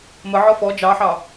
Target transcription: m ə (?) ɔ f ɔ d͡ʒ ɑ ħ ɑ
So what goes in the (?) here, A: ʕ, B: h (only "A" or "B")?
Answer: A